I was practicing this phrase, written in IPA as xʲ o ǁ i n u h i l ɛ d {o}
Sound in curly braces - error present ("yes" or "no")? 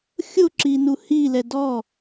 yes